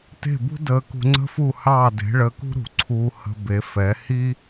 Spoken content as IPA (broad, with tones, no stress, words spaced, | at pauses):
te̤˥˩bṳ˥ dəː˧ kṳ˧ŋ͡ǀə̤˥fu˥˩ hɑː˥˩de̤˩˥ɭəː˧kṳ˥ ɾṳ˩ ǀʰuː˧hə̤˧ be˩˥fɛ˩˥ hi˥